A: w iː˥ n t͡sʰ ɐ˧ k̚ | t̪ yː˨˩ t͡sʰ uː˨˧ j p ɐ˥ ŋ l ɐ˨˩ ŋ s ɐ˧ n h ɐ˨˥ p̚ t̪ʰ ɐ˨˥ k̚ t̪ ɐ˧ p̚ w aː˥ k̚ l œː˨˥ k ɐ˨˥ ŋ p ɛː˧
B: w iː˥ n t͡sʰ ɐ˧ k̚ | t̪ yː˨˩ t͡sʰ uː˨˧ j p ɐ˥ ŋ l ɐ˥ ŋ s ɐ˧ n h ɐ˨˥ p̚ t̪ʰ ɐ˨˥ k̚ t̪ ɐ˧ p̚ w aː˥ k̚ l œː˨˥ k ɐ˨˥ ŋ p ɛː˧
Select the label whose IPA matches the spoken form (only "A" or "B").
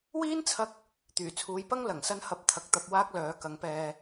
A